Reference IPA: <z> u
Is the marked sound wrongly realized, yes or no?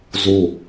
no